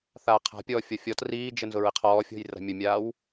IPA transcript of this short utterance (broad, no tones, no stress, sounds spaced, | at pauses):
θ aː qʰ a̤ pʲ ɔː fʲ ɔ fʲ ɔ t r iː d͡ʒ ə n z ʊ ɹ ɪ qʰ ɔː fʲ ɔ̤ j r a̤ mʲ ʊ mʲ aː w